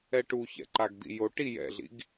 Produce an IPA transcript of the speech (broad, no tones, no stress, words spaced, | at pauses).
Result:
ɛʈu çɛ̰ǃaɡd̪ḭjo ʈi jɛ̰ɮḭɡ